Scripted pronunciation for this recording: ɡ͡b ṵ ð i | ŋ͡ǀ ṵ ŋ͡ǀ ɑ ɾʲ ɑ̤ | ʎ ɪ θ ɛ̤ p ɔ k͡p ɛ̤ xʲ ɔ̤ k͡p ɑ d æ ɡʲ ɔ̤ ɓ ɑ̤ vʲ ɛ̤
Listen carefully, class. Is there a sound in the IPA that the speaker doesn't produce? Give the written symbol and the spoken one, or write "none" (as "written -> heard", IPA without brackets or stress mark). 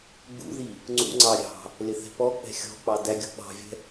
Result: ʎ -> l